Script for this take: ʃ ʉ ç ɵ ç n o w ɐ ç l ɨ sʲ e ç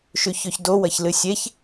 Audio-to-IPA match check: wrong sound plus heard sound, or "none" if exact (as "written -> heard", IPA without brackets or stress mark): n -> d